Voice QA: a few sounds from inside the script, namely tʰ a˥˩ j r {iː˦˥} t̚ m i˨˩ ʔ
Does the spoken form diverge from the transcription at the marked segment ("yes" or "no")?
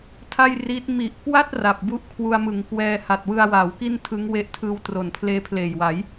no